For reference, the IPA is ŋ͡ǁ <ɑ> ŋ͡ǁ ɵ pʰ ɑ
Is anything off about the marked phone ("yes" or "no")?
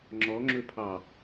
yes